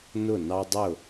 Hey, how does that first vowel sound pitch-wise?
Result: falling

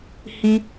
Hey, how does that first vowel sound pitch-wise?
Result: high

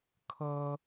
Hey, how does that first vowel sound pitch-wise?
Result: high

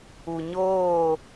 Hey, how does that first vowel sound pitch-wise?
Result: low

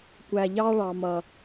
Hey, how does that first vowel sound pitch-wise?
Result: low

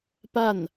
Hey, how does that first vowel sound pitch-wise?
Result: falling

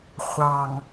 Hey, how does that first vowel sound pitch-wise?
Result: low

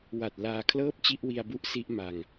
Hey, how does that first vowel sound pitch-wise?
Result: low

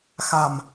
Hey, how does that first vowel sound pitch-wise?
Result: low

